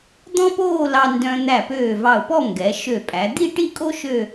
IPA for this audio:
d̪ɔ̃˥poː˥˧lɑ˧ ndœ̃˧ n̪æ˧˩pøː˧˩vɑ˧˩ʊ̯pɔ˥˧ ŋɡɛ˩˧ʃø˧˩pʼæ˩˧ d̪i˥˧ʈi˥˧kʼo˥ ʃø˥˧

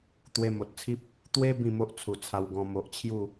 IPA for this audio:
t̪we˧mo˨t̚t͡sʰi˦p̚ | t̪we˦ bĩ˥˧mo˦ʔ t͡sʰu˨˩t͡sʰa˧wɡɔ̃˧ mo˨ʔt͡ɕʰju˥˧

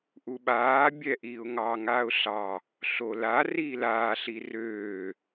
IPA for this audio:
ʔuɓaː bʲɛʔiːʊ̯ŋɑ ŋaːʊ̯ɬɑ | ɬola riːlaː ɬirøː

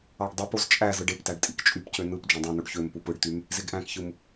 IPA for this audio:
ɑɖdˤupoz t͡ʃʼæ zɯɖeptæɖ tʼikt͡ʃʼypcø nɯp d͡ʒõdˤũnoɖ çømpup ɯɖt̪ym | zeɡʔæ̃kçɯm

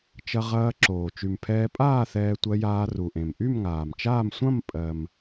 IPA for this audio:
t͡ʃɐ˧ ʁɐː˧ǁoː˩ t͡ʃy˩m pʰɛː˧pʼaː˥˨ θɛː˧tʷɜ˧jaː˧ ru˩ʔẽ˩m ʔy˥˨mŋaː˩mt͡ʃaː˥˨m sʷɐ̃˥˨m pʼɜ˩m

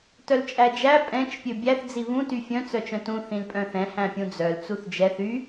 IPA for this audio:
tœlt͡ʃʼæd͡ʒæ pʼɛ̃t͡ʃ pʲøbʲæθ d͡ziβũ tyfʲœ̃ t͡sœt͡ʃœ̃tũ θĩlpʼœ̃θɛ̃ hæ̃pʲũd͡zœl t͡suθd͡ʒɛθ y

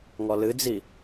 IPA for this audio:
ŋɔlɨd͡zi

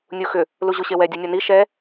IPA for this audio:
nʲuxʏ | luʑuɕewɛ dʲunʲɔni ʃɛ

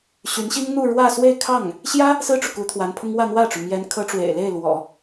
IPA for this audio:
ɕy˧˥nɕi˥ŋn̪u˥˧ ɻwä˥˧ swe˥˧ɪ̯kʰɑ˥˩ŋ | ɕjä˥ | sɹ̩˥ʈ͡ʂu˨ ku˧˥t̪ʰwa˧˥npʰʊ˥ŋ wä˥˧n̪wä˥˩ʈ͡ʂu˩ mjɛ˧˥nkʰɤ˧˥ʈ͡ʂwḛ˨˩ɪ̯ le˥˩ɪ̯lwɔ̰˨˩˦

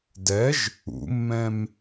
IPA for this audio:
dɛʒ | ṵmːɛ̃m

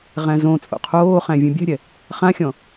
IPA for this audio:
ʁæ̃zõt͡sʼo̰ qʰoːχæ̃ vʲũbʲæ̤ɾʲɛ | χãxʲɔ̃

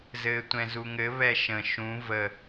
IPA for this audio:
zɘːtʷɛ̃zuŋɘ βɛʃə̃ ʃũ və

